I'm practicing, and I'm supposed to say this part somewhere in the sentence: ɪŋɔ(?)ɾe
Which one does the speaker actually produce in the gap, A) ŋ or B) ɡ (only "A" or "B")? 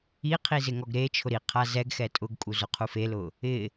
B